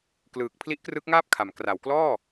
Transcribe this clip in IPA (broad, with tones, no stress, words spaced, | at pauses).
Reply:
klɯː˨˩k̚ pʰli˦˥ʔkrɯ˦˥k̚ŋaː˥˩p̚kʰa˩˦m kra˩˦wklɔː˥˩